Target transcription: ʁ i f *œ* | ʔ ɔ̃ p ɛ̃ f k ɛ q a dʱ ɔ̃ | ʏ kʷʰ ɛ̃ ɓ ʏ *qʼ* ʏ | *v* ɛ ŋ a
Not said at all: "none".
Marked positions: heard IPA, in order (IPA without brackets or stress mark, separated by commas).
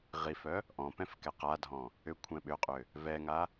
œ, qʼ, v